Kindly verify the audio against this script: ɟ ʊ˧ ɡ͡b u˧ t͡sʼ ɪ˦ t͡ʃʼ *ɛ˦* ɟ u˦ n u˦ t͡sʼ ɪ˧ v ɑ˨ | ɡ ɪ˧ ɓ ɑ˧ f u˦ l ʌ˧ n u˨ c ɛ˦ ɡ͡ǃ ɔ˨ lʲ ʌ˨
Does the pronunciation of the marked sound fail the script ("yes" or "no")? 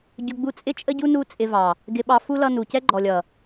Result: yes